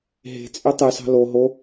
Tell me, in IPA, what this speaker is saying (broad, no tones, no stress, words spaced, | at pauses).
ɦe̤t͡sʼy tˤysɑ̤ lo ɦo